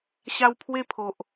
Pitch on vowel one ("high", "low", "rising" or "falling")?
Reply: high